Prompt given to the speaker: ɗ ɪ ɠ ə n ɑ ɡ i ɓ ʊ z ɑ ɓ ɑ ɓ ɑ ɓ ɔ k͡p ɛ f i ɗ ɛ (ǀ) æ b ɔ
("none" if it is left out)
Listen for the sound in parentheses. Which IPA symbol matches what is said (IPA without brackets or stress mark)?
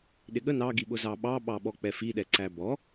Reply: ǀ